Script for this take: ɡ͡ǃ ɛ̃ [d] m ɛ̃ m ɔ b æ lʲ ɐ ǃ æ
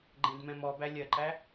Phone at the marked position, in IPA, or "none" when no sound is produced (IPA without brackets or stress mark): d